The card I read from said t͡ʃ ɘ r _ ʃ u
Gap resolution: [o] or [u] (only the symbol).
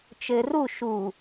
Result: u